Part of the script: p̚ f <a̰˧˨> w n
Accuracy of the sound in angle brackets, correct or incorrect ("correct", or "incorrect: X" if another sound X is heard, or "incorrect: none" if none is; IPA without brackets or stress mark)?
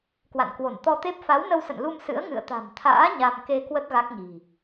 incorrect: a˨˦